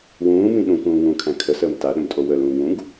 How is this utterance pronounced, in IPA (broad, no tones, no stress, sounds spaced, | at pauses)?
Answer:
w ũː m ĩ ɗ ũ k ũː ŋ ũː kʰ æ̃ kʰ ə s əː m t a ɗ ə̃ m tʼ o w ə l ũː ŋ ũ ɡ